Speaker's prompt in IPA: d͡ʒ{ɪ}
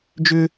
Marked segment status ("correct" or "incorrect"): incorrect